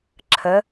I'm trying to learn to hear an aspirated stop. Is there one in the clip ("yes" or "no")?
yes